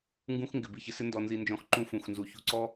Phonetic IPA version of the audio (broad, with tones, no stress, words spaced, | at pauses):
ŋɡũ˦xŋɡɪ˨ bi˨çɪ˨sɪ˦ ndɔ˨nzi˨nd͡ʒɔ̃˨x ǃũ˦fũ˨xnzu˨ çṳ˦ǀɔ˦